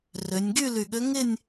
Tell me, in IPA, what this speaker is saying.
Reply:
rø˩˧nʲɡy˥˧ ly˧˩ɠø˧˥ ŋɪ˥˧nʲ

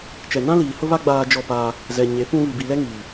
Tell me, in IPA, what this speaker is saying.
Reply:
t͡ʃɛ˨nã˦liː˨ hʊ˦βa˦ ɡ͡baː˦d͡ʒɔ˦˨paː˦ | zɛ˨ ɲe˨˦ pũ˦ βi˨bi˨ lɛ˦ŋiː˨

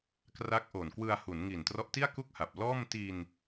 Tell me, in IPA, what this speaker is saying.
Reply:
kra˦˥k̚ʔoː˨˩nkwɯ˧a̯ hu˩˦nŋi˨˩n trɔ˦˥ʔti˥˩a̯ ku˥˩k̚ha˨˩p̚ lɔː˥˩m ti˧n

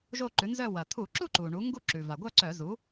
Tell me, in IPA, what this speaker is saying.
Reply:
ʒo˥˧ǃʉ˩˥nzœ˥˧ wɐ˩t̪ʰu˧˩˧ǁu˥˧ ǃu˩ɳu˩˥ ŋɡu˥˧ǁʉ˩ va˩ɡʷœ˥˧ ǀœ˧˩˧ zu˩˥

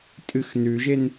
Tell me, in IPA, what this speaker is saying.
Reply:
tʼɨx nʉʒen

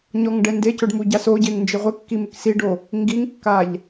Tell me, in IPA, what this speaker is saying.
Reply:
ɲɔŋɖɛndecʊɖ muɟasoɟeŋ nd͡ʒeʁʷekːi mɪksiɖo | ŋɡiŋkːaʎ

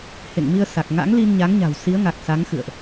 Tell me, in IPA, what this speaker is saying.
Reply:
hḛ˧˨ŋmi˧ə̯ sa˨˩k̚ ŋa̰˧˥ŋli˧n ɲa˨˦ŋɲa̤˨˩w si˨˦ə̯ŋa˨˩k̚ sa˨˦ŋxɨ̰˧˨ə̯ʔ

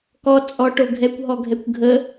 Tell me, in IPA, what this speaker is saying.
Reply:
kɔ t͡sʼɔʈo ɡʱɛkʷɦɔɡʱɛkʷ ɡʱə

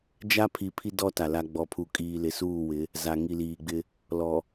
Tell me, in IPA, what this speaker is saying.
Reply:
d͡ʒa˦pʰi˨ pʰi˦dɔ˦ ta˨la˦ ɡ͡bɔ˨pʰu˨kʼiː˨ lɪ˨˦suː˦˨wɪ˨˦ | za˨ŋi˨liː˨ɡ͡bɪ˦ | lɔ˨

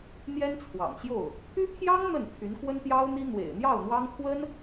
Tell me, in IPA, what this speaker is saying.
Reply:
n̪jɛ˥nt͡sʰwɑ̰˨˩ŋɕjo˥˩ʊ̯ | pʰy˥pʰjɑ˥ŋ n̪ə˥˩n t̪ʰy˧˥nkwə˥nt̪jɑ˥ʊ̯n̪i˥ n̪wḛ˨˩ɪ̯n̪jɑ˥˩ʊ̯ n̪wɑ˥ŋt̪ʰwə˥n

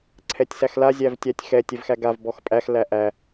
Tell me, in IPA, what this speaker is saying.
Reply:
ǀʰɛtʲsæxla zʲævtʲætʲxɛ tʲɛvxæɡav bɔxpʼæx læʔæ

